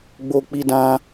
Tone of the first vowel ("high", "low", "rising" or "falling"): high